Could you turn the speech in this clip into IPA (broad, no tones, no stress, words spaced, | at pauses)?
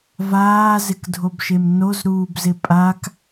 vaːzɪkdʱobʃem nozɾuːbzɪ pʼak